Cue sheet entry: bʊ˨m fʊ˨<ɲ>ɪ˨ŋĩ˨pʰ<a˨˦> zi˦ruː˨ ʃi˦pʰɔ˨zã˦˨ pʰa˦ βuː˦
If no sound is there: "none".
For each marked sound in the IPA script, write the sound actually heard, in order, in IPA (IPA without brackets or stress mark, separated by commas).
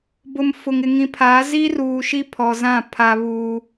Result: ŋ, aː˨˦